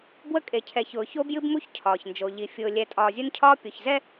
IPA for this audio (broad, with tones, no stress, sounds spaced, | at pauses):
b w ə˦ kʼ e˨ cʰ ɛ˨ ç ʊː˨ ç o˦ b j ɨ˦ b m u˦ ç cʰ ɒː˨ ç n d͡ʒ o˨ ʎ i˨ fʲ ʊː˨ lʲ ɛ˨ tʼ ɒː˨ zʲ ʊ˦ n cʰ ɒː˦ pʲ o˨ ç z ɛ˦